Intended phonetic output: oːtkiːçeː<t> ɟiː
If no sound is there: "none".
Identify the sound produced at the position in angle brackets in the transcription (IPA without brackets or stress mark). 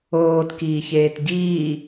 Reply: t